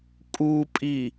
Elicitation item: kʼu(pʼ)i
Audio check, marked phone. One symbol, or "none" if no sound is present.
pʼ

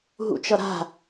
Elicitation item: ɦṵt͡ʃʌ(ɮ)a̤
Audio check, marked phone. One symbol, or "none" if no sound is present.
ɾ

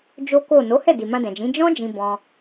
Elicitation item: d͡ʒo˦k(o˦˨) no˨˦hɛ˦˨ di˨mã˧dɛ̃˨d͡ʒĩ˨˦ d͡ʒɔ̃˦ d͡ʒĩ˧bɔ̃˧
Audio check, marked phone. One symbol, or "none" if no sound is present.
o˦˨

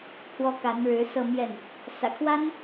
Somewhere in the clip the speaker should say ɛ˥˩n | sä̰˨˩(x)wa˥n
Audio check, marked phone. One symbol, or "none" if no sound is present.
kʰ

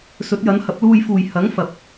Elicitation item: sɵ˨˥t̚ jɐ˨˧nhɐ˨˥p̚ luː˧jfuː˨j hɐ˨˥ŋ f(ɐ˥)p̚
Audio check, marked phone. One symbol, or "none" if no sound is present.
ɐ˨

